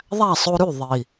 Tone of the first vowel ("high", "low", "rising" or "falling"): falling